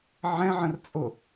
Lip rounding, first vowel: unrounded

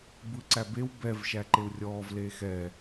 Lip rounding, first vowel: unrounded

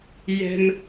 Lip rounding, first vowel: unrounded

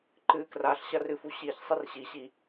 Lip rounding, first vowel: unrounded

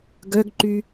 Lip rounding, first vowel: rounded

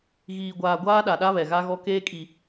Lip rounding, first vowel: unrounded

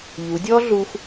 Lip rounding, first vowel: rounded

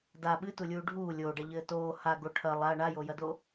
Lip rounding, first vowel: unrounded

